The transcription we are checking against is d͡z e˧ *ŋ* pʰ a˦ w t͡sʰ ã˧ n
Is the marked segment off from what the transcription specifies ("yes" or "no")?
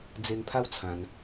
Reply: no